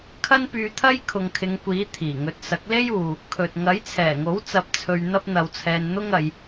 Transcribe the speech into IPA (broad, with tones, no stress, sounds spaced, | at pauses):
kʰ ɐ˥ n p yː˧ t̪ʰ ɐ˥ j kʰ ʊ˨ ŋ kʰ ɪ˨˧ ŋ kʷ iː˨˥ t̪ʰ iː˨˩ ŋ ɵ˧ t̚ s ɐ˨˥ k̚ l e˥ j uː˨ | kʰ ɵ˨ t̚ ŋ ɐ˨˥ j t͡sʰ ɛː˨˩ ŋ o˨˥ w t͡s ɐ˧ p̚ t͡sʰ ɵ˧ ɥ n̪ ɐ˥ p̚ n̪ ɐ˧ w t͡sʰ ɛː˧ n n̪ ʊ˥ ŋ ɐ˨˧ j